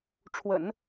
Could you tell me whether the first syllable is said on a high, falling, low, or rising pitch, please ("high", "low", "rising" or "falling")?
low